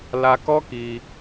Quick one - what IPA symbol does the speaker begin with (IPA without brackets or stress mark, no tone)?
l